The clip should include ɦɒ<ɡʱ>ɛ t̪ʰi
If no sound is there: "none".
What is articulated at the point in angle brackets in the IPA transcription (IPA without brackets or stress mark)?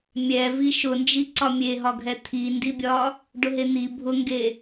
ɡʱ